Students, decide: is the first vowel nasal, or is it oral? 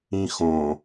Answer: nasal